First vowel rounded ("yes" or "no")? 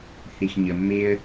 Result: no